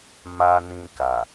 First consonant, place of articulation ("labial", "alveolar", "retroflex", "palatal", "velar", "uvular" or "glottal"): labial